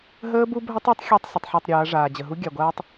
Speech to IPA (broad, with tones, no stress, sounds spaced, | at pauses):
ɦ əː˦ b u˦ bʱ ə˦ tˤ ɤ˦ tˤ xʲ a˦ tˤ s ə˨ tˤ ħ ɤ˦˨ tˤ ɾʲ ɤː˨˦ ɐ̯ ʐ aː˨ d͡ʑ ə˨ ɦ u˦ ɡʲ a˨ ɡʷ aː˦ tˤ